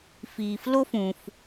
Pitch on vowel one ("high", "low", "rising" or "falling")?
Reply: low